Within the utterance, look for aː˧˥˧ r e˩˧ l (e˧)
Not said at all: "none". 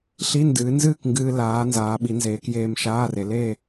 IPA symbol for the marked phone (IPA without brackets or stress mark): e˥˨